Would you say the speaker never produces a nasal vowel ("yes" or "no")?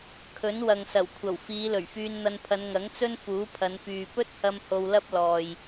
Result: yes